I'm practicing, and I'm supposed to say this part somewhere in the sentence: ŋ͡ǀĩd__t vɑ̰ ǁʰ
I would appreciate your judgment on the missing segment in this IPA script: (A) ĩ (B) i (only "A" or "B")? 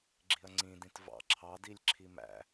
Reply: A